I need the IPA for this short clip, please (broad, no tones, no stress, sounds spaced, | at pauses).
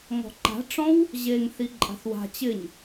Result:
ŋ ɔ̤ ǃ a̤ ʈ͡ʂ ɔ̃ w | ʑ e ŋ θ i ǃʼ a̤ θ w a̤ t͡ɕ ɪ ɲ